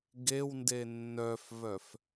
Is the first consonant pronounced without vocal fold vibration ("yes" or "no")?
no